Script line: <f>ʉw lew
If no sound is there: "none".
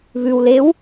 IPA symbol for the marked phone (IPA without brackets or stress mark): β